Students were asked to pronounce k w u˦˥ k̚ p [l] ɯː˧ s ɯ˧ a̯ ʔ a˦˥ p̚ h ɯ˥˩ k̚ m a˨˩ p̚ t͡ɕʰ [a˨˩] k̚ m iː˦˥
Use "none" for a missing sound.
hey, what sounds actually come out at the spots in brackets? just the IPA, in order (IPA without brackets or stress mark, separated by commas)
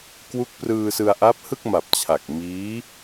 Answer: r, a˨˩